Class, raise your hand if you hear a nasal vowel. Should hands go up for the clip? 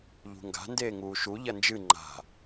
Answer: no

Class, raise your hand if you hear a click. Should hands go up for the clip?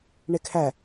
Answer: no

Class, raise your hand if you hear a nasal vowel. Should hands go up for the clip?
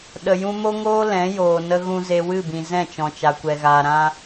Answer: yes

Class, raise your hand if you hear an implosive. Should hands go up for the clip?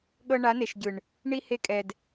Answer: yes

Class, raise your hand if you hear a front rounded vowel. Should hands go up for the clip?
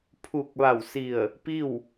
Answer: no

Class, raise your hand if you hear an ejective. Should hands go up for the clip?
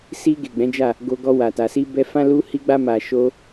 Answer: no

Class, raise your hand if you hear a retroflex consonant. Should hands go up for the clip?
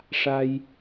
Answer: yes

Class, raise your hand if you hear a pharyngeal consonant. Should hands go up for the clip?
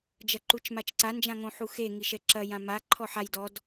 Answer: yes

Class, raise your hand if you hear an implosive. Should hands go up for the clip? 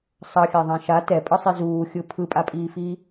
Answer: no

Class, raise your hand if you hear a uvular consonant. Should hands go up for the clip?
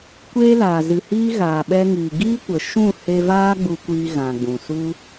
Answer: no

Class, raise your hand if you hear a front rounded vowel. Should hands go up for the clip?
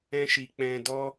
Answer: no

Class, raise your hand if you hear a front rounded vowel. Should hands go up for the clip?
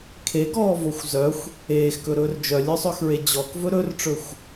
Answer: yes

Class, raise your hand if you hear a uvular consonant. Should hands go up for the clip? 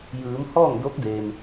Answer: no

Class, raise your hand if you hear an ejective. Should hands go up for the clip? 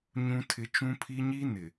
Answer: no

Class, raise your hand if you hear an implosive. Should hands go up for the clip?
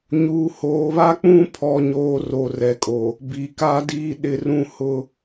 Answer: yes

